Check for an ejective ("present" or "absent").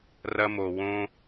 absent